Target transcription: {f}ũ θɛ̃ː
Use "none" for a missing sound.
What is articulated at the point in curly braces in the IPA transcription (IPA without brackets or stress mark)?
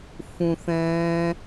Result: f